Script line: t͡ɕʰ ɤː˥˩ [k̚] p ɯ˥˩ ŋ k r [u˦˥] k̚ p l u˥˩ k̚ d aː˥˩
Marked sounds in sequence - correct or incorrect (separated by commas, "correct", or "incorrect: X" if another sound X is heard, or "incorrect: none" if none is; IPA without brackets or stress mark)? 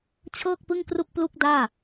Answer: correct, incorrect: u˥˩